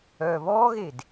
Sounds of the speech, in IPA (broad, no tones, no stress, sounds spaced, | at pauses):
œː β ɔː ɣ e d